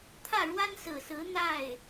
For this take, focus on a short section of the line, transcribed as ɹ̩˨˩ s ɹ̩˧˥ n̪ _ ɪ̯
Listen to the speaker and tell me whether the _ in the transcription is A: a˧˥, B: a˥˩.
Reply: B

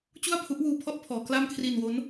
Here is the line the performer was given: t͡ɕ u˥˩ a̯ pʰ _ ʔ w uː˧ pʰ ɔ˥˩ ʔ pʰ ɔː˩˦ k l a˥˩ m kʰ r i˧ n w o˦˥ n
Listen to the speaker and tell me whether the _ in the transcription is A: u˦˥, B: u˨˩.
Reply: A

